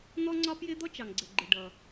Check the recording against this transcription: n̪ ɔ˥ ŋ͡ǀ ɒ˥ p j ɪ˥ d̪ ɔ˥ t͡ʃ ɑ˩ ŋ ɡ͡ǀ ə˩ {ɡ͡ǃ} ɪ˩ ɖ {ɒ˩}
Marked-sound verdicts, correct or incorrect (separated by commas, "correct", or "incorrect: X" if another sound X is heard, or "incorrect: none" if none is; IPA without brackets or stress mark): correct, incorrect: ʌ˩